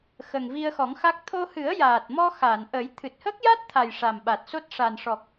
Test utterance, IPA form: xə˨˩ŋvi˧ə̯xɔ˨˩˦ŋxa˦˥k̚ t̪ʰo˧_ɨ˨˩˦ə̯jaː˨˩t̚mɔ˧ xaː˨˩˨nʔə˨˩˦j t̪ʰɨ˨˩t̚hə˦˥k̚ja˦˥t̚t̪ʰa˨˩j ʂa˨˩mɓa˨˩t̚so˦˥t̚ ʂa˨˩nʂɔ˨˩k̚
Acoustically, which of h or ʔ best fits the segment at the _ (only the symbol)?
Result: h